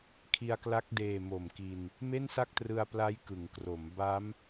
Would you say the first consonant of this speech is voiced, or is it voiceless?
voiceless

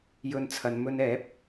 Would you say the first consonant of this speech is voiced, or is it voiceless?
voiced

